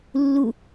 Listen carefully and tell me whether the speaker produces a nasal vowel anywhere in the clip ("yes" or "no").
no